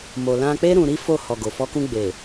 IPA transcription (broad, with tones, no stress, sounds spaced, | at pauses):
m o˨ l ã˧ k͡p e˦ ɾ ũ˧ ɾ i˦ f o˦˨ h ɔ˨ ɡ o˨ f ɔ˧ k ũ˧ ɡ͡b e˨